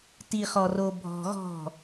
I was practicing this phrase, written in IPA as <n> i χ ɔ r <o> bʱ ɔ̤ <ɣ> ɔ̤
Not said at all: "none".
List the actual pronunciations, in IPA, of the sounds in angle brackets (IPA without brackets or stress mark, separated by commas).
t, o, ɣ